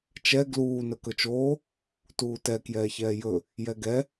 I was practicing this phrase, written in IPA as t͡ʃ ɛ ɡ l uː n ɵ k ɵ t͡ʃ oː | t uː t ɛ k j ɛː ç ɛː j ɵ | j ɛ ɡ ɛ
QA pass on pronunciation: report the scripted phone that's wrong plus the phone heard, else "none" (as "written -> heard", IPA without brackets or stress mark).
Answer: none